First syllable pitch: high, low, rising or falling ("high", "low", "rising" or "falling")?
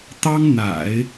high